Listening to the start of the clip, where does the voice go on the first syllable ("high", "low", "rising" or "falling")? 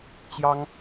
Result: high